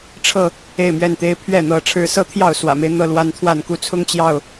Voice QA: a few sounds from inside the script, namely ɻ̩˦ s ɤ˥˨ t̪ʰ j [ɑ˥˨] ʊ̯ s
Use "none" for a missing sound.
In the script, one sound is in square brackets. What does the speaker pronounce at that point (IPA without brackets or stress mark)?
ɑ˥˨